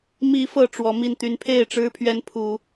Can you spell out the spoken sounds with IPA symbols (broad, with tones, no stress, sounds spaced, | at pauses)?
m i˨˦ f ɤ˥˨ ʈ͡ʂ w ɔ˨˦ m i˥˨ n t̪ y˨˦ n pʰ e˥˨ ɪ̯ ʈ͡ʂ ɻ̩˦ pʰ ɥ ɛ˦ n pʰ u˨˦